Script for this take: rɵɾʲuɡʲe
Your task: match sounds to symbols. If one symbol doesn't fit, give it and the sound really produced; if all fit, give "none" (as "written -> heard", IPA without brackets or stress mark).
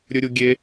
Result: r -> ɾʲ